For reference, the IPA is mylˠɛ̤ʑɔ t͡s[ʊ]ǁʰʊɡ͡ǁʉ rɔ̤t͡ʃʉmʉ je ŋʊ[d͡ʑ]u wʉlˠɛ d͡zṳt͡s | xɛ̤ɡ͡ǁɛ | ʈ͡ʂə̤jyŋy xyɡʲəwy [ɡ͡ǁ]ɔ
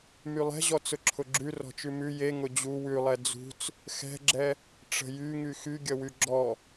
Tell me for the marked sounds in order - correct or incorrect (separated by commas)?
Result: correct, correct, correct